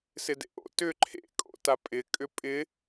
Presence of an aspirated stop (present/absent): present